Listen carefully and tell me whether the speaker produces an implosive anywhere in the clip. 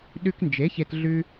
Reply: yes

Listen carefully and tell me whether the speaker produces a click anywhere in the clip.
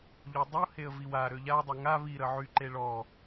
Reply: yes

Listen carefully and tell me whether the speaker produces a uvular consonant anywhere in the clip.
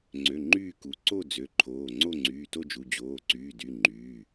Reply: no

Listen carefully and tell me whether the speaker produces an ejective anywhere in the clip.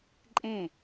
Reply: yes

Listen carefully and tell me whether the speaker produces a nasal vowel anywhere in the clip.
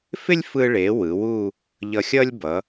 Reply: no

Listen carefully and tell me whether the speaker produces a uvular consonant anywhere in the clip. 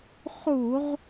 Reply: yes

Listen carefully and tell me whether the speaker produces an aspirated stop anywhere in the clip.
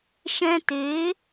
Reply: no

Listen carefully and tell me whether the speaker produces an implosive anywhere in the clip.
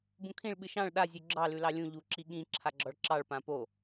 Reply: yes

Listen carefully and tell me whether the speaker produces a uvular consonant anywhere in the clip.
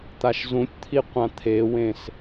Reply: yes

